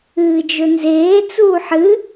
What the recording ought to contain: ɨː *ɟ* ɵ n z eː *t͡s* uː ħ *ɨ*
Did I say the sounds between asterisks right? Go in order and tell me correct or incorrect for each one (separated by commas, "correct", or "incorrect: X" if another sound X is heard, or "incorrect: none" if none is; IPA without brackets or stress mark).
incorrect: d͡ʒ, correct, correct